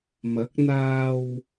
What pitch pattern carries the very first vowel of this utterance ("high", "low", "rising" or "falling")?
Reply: rising